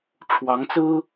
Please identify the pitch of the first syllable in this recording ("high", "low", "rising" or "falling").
rising